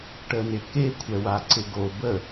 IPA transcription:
ʈ ə n ɪ k e kʷʰ ɛ w a ǀ ɪ ɡ o b ə

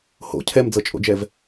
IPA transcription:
h o̰ cʰ ɛ m d͡z ɤ t͡ʃʼ o̰ d͡ʒ ɛ v

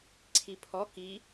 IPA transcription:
ǀʰ i pʰ ɔ k i

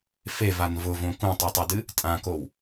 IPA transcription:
f e v a n v ʊ v õ k ũ tˤ u tˤ e d ɨ | tʼ ã k o w

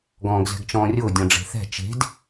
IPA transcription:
ɡ ɔ̃ː ɡ z ɛ̤ ɡ t͡ʃ ɔ̃ː rʲ ʊː dʲ ɔ̃ ɖ͡ʐ e̤ θ ɛ̤ t͡ʃ e̤ d

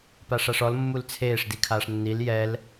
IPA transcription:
p a ʂ a ʂ ɔ l mː u l t͡sʰ eː ʂ d i kʰ aː ʂ nː i l j ɛ l

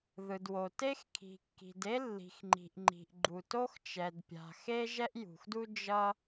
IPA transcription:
ð ɯ˩ d w o˩ t e˥ x kʰ i̤˩ kː i̤˩ d e˥ lː i̤˩ x ŋ͡ǃ i̤˩ ʔ ŋ͡ǃ i̤˩ ʔ ɡ͡ǃ u˩ t o˥ x t͡ʃ ɛ˩ d pʲ a̤˩ x e˥ ʒ ɛ˥ ʔ j ṳ˩ x d u˥ d͡ʒ ʌ˥

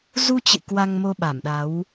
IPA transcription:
z u˧ t͡ɕ ɨ̰˧˨ k w a˧ ŋ m o˧ ɓ a˧˩ m ɗ a˨˦ w

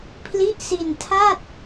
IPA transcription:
pʰ l i˦˥ ʔ s i˧ n tʰ a˥˩ t̚

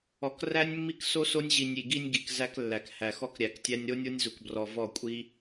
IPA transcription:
ɔ˨ k r æ˦ nʲ mː i˦ k s o˦ s o˦ nʲ ʑ i˨ nʲ i˨ ɡ i˦ nʲ ɡ i˨ k z æ˦ k lː æ˨ k h æ˨ x ɔ˦ k ɾʲ æ˨ k tʲ æ˦ nʲ ɾ o˦ nʲ o˦ nʲ z u˨ k b r ɔ˨ v ɔ˦˨ kʷʼ i˦

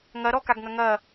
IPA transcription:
ŋ ɐ ɾ ɔ k a ɡ ŋ ɐ ŋ ɐ

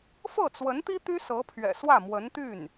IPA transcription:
f ɤ˥˩ t͡s w ə˧˥ n t̪ i˥ t̪ y˥ s ɤ˧˥ pʰ ɥ ɛ̰˨˩ s w ä˥˩ m w ə˧˥ n t̪ y˥˩ n

